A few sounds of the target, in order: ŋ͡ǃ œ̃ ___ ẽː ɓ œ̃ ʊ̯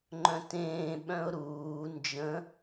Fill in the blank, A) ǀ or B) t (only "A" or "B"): B